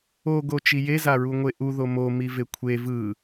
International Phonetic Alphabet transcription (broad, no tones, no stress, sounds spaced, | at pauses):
o ɡ o t͡ʃ i j e z a ɹ u ŋʷ e ʔ u ð o m o m i v e kʷʰ e v ɯ